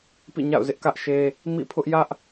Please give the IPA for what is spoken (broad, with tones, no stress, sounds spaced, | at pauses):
p ḭ˦˨ ɲ a̰˦˨ ʊ̯ z ɪ˦ ʔ k ä˦ ʔ ʃ e˦ | m ḭ˦˨ pʰ ʊ˦ ʔ j ä˦ ʔ